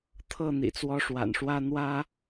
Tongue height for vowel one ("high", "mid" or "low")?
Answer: mid